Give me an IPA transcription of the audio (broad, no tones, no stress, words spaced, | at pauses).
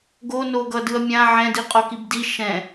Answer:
ɡonoɡʌ dɯɐ̯mʲã ʕɛ̃diqʼo kibdi ʃɛ̃